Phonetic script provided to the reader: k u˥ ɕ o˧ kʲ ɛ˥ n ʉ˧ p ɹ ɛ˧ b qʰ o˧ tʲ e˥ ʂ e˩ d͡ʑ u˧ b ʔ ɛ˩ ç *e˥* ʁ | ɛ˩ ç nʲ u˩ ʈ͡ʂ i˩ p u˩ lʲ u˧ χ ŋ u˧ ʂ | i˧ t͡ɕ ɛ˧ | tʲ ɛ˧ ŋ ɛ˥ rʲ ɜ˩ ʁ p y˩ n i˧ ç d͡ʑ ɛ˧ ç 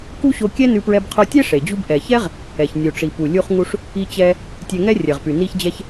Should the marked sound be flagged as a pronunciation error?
yes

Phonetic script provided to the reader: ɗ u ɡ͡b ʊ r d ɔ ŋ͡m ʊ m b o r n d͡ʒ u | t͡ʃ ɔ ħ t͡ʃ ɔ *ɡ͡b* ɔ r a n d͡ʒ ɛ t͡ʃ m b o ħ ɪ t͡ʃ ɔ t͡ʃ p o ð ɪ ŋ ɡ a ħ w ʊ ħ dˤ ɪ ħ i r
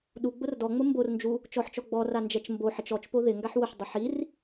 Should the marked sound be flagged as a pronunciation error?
no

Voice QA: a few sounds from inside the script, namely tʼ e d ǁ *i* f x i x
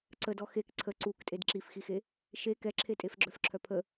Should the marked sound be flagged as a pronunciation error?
no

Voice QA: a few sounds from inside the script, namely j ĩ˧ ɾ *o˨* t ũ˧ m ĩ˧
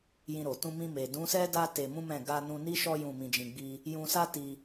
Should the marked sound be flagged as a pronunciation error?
no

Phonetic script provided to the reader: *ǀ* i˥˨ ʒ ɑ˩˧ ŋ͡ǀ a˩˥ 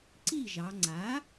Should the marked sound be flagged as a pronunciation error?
no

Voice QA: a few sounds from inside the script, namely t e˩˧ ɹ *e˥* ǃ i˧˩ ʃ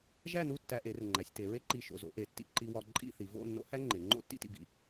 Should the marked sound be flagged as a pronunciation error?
no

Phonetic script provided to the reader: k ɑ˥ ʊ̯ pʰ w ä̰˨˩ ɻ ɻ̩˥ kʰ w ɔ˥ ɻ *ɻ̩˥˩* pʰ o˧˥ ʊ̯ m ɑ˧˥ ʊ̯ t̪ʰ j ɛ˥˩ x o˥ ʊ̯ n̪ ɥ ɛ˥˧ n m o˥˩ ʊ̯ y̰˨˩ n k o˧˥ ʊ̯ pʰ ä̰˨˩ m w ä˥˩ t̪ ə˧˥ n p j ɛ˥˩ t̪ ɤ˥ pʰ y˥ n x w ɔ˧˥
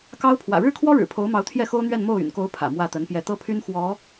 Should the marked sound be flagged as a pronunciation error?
yes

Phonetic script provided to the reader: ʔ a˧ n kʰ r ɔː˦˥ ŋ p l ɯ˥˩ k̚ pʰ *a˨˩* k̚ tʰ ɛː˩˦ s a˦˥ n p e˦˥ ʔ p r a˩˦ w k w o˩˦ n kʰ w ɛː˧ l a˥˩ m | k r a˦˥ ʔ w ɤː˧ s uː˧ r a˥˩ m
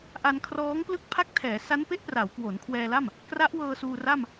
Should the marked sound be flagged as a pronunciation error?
yes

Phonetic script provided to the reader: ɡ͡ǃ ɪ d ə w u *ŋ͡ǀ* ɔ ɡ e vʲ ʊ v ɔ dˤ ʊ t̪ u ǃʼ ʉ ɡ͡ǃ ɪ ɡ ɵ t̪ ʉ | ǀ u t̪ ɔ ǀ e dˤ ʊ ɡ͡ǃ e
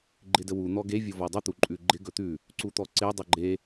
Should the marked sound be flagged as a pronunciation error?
yes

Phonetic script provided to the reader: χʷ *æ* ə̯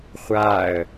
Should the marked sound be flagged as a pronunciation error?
yes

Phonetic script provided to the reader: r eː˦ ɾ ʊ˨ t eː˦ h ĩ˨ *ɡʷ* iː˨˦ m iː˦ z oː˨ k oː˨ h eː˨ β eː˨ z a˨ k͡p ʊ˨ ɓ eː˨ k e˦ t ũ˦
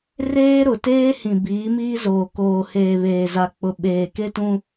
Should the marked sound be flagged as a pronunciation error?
yes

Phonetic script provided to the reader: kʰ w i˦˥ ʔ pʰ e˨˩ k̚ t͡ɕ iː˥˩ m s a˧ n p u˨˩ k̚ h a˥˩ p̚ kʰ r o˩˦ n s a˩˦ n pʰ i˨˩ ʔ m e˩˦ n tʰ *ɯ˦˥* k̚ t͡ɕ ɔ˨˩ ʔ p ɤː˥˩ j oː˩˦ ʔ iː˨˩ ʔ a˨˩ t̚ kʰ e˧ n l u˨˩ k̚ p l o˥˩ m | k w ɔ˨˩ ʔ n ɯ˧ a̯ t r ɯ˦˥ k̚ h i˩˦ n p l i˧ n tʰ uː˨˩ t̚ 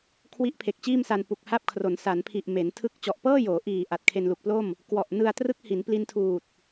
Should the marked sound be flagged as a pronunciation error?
no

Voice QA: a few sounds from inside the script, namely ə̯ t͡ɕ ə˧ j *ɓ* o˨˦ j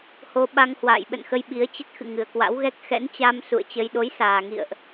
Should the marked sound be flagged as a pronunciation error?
yes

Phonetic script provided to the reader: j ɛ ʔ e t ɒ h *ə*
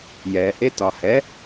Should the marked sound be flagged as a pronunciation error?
yes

